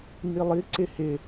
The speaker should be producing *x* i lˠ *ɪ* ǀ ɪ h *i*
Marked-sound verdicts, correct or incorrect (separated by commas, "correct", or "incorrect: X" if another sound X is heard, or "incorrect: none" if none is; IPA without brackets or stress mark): incorrect: ŋ, incorrect: i, incorrect: ɪ